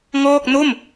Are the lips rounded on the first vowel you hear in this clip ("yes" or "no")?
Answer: yes